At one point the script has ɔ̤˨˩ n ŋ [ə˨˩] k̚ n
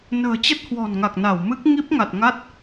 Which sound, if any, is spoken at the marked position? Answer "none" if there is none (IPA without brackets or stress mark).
a˨˩